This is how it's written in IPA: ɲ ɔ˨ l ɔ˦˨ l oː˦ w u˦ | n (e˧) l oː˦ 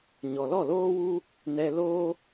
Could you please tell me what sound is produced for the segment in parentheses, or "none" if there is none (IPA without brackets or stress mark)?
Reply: ɛ˧